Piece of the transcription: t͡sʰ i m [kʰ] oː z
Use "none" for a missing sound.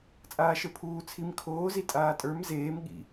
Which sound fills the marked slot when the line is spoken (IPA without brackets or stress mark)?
kʰ